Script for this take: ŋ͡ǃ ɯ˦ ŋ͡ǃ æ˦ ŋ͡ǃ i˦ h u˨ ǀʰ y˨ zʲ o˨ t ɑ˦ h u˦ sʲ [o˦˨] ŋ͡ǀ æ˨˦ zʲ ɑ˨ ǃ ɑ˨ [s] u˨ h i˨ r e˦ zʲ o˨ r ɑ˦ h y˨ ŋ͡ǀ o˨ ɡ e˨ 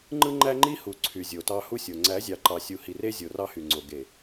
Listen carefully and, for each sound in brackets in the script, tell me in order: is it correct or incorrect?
incorrect: o˨, incorrect: sʲ

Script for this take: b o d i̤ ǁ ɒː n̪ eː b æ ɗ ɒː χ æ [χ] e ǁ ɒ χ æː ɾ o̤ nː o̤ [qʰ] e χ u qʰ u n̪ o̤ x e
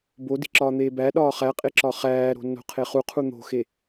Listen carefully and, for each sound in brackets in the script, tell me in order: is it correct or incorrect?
incorrect: qʼ, correct

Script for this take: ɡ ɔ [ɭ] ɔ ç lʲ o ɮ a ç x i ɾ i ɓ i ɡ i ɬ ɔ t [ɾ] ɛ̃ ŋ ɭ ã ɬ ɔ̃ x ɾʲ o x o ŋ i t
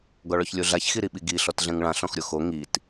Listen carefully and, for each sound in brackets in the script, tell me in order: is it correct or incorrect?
correct, incorrect: ɮ

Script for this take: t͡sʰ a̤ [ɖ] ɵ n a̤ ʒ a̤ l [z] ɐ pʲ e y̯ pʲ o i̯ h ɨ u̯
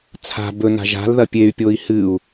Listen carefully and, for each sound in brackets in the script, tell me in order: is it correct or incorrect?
incorrect: b, incorrect: ð

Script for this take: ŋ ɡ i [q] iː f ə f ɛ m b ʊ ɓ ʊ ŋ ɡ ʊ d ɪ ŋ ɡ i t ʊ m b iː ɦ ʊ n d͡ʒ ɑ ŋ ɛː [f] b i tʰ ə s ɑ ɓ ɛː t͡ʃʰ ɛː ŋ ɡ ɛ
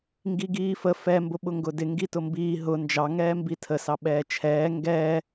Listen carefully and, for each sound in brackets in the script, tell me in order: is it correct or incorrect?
incorrect: ɡ, incorrect: m

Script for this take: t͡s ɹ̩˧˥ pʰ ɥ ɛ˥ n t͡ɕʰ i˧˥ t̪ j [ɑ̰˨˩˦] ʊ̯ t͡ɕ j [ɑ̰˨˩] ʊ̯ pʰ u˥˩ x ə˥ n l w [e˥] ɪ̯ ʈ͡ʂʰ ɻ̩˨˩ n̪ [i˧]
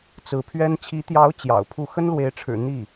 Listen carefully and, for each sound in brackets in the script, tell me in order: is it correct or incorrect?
incorrect: ɑ˧˥, correct, incorrect: e˧˥, incorrect: i˥˩

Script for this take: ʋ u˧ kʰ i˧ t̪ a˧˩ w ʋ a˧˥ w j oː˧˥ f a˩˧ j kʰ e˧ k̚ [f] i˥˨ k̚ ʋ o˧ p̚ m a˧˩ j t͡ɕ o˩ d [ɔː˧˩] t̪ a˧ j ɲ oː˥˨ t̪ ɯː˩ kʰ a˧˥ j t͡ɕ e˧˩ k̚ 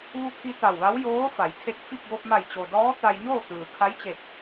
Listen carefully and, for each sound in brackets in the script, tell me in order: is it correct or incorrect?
correct, incorrect: ɔː˧˥

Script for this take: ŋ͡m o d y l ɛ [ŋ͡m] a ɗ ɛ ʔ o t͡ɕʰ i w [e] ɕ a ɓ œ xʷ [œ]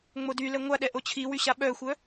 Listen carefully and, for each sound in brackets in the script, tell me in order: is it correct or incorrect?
incorrect: ŋʷ, incorrect: y, correct

